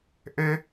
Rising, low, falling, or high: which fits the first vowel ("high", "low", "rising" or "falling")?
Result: high